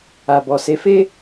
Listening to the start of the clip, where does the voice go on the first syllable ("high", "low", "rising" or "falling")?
low